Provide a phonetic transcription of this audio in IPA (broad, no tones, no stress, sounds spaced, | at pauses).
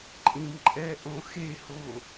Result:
ǃʼ ĩ m ǃʼ ɛ ʔ õ x e h o